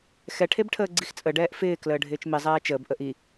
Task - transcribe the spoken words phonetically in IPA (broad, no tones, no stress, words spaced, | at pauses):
xɛʈʰebʈʰəː ɡ͡ǀixt͡sʼə ɖɛːʔfɪː kləːɖʱɪːt͡ʃmi zˤɛːt͡ʃəːb ʔəʔi